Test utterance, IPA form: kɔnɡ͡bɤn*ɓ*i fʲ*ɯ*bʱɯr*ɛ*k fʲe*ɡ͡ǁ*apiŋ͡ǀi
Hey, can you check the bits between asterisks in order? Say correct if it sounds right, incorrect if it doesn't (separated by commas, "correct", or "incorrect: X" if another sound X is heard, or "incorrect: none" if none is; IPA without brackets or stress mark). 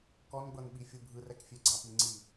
correct, incorrect: u, correct, incorrect: ɡ͡ǀ